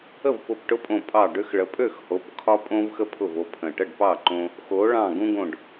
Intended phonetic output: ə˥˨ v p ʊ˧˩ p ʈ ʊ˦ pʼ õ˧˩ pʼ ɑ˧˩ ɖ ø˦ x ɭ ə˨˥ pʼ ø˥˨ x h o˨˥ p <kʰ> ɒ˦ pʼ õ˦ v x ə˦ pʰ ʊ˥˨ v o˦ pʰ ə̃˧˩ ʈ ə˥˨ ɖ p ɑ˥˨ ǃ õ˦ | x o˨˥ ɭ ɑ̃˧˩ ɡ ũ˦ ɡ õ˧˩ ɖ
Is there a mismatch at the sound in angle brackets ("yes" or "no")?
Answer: no